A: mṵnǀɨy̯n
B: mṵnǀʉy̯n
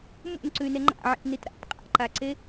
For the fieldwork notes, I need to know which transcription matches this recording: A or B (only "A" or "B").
B